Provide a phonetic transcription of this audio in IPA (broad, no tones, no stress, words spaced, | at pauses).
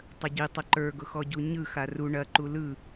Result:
tˤəɟi tˤəǃə˞ ɡʊxɔɟuɲɯ xaru ɳɐ ǃulɯ